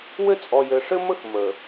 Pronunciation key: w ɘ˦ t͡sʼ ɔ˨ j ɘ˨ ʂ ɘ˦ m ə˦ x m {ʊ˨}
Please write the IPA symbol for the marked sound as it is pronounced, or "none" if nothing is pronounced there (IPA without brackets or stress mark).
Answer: ə˨